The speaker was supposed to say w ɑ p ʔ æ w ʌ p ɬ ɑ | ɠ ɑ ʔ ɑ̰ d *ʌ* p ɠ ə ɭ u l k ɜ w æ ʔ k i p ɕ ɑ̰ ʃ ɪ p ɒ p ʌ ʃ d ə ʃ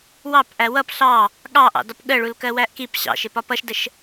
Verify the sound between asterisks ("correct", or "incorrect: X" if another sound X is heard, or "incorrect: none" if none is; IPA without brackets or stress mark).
incorrect: ɒ